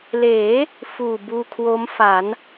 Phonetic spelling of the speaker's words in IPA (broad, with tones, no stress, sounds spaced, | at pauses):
l eː˩˦ | f uː˨˩ b uː˧ kʰ w o˦˥ m f a˩˦ n